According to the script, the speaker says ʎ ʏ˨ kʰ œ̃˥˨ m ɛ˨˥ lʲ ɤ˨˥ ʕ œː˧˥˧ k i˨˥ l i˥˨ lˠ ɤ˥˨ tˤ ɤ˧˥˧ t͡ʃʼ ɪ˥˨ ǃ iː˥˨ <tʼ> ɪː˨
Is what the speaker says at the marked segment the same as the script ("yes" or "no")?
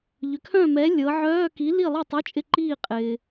no